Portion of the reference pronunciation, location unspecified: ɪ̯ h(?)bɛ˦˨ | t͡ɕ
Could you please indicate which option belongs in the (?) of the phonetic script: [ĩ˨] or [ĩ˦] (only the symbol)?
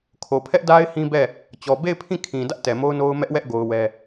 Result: ĩ˦